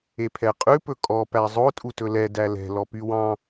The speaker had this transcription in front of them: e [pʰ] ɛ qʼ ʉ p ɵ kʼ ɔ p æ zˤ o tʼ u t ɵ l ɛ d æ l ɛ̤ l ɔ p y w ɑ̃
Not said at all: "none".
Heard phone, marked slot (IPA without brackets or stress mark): pʰ